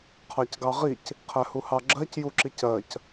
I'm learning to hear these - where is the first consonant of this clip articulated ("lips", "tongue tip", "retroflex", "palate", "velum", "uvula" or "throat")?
uvula